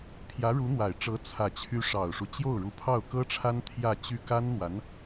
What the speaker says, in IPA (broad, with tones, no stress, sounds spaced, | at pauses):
pʰ j ä˧˥ ɻ u˧˥ n̪ w a˨˩ ɪ̯ ʈ͡ʂ ɤ˧˥ t͡sʰ ä˨˩ t͡ɕʰ y˧˥ ʂ ɑ˨˩ ʊ̯ ʂ u˦ t͡ɕ j o˥˩ ʊ̯ ɻ u˧˥ pʰ ɑ˥˩ ʊ̯ k ɤ˥ ʈ͡ʂʰ a˥ n t̪ʰ j ä˥˧ t͡ɕ y˥˩ k a˥ n n̪ w a˧˥ n